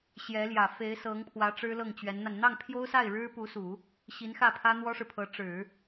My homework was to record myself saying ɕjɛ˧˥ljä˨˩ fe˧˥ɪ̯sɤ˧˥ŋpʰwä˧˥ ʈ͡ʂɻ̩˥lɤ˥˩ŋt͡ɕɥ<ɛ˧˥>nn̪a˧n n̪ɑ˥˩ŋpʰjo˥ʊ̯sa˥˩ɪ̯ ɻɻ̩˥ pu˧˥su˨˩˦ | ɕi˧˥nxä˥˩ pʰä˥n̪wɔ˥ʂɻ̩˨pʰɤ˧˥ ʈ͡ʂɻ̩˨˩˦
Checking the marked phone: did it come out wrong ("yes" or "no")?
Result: no